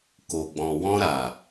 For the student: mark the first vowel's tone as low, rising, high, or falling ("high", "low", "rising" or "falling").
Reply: low